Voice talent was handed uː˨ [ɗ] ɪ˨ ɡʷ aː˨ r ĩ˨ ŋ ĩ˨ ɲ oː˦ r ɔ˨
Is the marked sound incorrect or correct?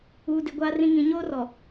incorrect